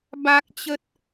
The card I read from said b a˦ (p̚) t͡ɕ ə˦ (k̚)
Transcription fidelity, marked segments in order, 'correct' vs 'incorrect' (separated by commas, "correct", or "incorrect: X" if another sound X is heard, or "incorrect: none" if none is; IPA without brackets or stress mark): incorrect: k̚, incorrect: t̚